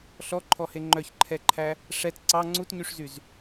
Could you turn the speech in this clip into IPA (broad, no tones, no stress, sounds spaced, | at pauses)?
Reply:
ɬ ɔ ǃʰ ɔ h e ŋ͡ǃ œ ç ǃʰ ɛ ǃʰ æ | ʂ ɛ t ǀ ɑ ŋ͡ǀ u t ɲ y ʂ z y z